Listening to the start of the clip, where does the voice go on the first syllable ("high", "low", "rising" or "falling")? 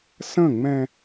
falling